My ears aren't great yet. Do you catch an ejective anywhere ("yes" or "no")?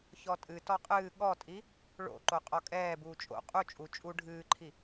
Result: yes